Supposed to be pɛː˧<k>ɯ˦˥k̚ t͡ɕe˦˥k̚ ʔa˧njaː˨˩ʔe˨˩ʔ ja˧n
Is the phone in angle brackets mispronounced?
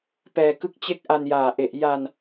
no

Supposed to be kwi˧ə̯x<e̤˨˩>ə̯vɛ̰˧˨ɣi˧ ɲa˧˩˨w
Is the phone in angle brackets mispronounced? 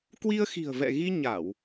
yes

